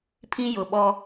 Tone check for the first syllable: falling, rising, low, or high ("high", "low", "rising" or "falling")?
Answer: high